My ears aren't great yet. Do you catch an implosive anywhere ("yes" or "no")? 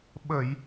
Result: yes